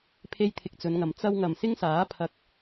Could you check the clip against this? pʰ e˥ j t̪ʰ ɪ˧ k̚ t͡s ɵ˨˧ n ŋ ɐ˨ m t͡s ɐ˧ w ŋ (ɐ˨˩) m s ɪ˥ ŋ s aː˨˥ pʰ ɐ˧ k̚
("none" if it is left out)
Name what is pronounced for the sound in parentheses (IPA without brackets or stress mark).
ɐ˨˩